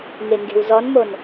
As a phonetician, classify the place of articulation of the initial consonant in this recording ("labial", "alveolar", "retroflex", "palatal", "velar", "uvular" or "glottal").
velar